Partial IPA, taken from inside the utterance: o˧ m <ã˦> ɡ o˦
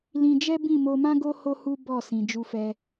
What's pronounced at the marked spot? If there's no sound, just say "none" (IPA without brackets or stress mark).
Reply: ã˦